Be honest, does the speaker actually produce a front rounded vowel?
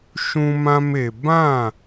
no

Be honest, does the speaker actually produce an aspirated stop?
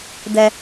no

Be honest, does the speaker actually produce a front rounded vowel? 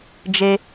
no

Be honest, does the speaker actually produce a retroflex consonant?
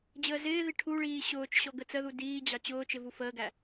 yes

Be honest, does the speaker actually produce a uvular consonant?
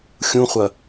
yes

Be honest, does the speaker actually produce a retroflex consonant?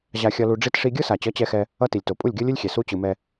yes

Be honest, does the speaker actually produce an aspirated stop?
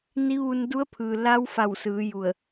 yes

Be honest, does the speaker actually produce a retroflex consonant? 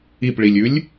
yes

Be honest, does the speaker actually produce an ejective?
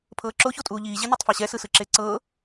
yes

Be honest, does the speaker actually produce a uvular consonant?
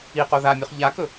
yes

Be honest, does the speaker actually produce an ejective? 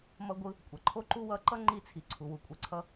yes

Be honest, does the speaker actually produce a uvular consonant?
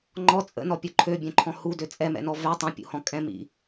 no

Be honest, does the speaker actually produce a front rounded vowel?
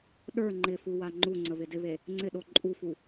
no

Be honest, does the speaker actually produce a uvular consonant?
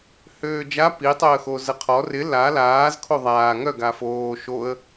yes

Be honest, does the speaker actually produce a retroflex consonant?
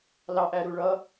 yes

